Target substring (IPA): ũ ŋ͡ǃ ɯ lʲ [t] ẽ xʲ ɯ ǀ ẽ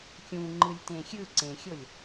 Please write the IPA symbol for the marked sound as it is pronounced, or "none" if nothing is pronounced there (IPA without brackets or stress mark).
t